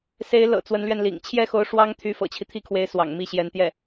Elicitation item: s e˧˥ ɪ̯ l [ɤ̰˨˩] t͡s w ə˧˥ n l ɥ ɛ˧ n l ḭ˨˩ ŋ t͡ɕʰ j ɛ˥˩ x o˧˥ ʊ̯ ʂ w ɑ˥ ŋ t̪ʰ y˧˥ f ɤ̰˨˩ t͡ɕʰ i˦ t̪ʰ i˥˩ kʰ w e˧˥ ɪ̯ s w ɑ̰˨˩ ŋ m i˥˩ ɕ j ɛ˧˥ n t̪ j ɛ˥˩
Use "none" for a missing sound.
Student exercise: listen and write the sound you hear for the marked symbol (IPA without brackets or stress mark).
ɤ̰˨˩